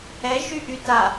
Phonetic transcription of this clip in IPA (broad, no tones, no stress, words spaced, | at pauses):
ɛʒy ʔyta